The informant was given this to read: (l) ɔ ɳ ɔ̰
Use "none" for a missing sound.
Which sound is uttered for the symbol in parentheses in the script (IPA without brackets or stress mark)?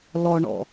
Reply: l